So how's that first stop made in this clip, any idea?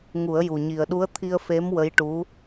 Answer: implosive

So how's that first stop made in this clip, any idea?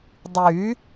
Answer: plain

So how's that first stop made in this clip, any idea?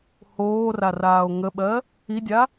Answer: implosive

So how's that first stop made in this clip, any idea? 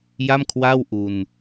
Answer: aspirated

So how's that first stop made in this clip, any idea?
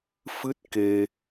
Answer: plain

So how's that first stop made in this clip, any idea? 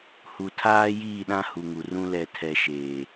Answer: aspirated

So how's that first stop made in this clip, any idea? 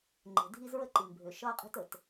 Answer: click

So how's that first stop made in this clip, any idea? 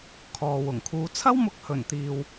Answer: aspirated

